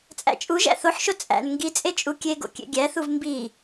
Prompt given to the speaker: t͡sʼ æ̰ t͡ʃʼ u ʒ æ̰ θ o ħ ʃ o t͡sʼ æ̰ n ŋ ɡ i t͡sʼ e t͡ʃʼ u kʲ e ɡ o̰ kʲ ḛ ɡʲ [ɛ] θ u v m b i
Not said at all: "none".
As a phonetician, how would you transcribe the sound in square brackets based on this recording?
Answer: æ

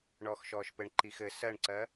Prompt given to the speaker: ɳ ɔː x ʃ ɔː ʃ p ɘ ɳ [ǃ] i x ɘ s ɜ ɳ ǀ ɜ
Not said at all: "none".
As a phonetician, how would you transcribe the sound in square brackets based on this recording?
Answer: ǃ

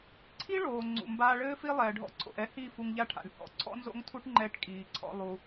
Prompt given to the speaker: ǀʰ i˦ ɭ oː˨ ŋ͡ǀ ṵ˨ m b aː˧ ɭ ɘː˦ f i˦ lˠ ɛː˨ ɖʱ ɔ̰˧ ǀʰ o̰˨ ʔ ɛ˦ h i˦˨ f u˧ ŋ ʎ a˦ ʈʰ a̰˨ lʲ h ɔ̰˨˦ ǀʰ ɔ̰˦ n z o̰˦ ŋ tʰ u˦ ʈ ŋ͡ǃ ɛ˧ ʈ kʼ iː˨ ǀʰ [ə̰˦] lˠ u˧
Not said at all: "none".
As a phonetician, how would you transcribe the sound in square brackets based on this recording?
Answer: ɔ̰˦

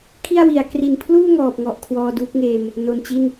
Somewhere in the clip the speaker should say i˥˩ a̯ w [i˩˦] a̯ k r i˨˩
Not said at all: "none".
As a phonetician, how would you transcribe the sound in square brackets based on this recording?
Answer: i˩˦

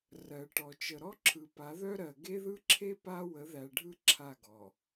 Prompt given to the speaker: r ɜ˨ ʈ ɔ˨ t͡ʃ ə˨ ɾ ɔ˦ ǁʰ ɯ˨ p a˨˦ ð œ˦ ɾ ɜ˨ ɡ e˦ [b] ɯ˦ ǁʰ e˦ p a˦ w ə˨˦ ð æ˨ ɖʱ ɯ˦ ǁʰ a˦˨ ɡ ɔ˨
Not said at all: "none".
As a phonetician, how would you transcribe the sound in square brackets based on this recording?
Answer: ð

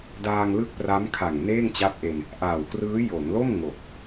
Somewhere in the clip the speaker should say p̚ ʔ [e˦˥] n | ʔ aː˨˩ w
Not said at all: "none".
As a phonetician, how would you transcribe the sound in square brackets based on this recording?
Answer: e˧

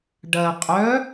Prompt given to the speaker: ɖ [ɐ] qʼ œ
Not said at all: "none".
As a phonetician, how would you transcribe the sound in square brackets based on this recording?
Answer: ɐ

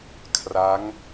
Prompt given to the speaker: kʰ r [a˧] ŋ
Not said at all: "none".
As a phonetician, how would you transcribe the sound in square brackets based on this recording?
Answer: a˦˥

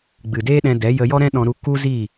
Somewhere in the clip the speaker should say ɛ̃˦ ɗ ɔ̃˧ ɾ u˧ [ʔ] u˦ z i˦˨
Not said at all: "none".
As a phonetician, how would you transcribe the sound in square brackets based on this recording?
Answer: k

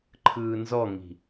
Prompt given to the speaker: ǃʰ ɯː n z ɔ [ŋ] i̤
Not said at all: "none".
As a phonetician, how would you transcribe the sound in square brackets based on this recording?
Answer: ŋ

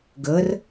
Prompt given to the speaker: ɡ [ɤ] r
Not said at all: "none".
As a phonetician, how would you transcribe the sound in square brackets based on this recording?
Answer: ɤ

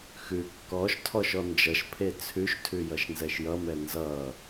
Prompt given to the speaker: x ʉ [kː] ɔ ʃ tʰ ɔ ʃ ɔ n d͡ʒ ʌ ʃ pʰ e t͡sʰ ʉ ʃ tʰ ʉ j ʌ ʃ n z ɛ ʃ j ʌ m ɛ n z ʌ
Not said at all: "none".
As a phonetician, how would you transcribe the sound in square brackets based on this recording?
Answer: kː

